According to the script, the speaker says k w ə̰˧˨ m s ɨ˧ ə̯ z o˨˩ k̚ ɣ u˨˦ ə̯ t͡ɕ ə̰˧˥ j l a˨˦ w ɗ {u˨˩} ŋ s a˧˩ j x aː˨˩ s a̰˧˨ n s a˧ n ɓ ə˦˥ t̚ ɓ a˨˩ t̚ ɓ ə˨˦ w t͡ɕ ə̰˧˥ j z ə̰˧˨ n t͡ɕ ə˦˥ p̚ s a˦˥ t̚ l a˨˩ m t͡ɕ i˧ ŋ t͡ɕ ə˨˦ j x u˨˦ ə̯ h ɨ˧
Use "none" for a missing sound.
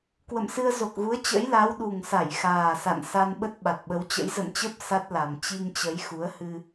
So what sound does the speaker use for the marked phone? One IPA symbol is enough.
u˨˩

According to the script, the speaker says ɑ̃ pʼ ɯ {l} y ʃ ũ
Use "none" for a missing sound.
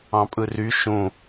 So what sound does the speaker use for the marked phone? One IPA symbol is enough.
r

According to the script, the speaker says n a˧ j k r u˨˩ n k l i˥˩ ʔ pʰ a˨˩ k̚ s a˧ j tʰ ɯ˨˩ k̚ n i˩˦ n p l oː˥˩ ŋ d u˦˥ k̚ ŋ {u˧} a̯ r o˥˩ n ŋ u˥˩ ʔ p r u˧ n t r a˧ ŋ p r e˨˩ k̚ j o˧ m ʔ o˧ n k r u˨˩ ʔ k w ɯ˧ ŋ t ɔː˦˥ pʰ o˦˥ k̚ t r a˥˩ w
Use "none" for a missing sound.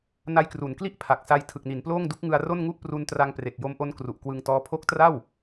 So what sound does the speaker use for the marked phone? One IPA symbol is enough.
ɯ˧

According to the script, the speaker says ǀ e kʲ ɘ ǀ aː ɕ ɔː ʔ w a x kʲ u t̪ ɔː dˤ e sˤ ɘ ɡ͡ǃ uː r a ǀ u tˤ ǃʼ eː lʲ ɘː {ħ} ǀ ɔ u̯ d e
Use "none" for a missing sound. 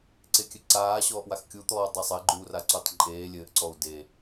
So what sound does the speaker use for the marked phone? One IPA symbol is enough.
ʔ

